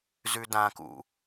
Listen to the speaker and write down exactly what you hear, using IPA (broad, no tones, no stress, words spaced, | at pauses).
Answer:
zʉdãkṵ